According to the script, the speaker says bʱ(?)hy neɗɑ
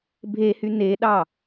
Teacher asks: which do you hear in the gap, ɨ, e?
e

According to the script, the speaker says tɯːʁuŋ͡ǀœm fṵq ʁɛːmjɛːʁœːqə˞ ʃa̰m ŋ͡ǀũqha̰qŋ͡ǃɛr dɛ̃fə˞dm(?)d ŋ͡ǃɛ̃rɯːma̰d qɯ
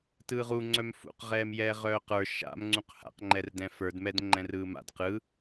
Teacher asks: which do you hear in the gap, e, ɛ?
ɛ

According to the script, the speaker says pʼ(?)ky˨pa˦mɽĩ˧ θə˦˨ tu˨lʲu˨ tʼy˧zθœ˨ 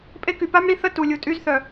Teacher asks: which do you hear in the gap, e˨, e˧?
e˧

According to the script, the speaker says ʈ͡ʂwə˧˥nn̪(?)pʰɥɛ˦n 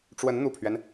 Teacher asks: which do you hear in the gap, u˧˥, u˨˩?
u˨˩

